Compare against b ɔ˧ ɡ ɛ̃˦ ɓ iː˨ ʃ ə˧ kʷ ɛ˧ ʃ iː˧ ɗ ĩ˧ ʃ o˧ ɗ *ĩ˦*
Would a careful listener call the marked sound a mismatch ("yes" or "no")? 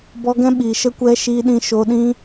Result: no